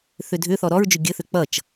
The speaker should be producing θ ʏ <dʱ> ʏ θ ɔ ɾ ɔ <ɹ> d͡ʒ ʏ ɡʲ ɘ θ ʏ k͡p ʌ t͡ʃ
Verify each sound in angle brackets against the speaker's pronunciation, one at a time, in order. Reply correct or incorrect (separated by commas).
correct, correct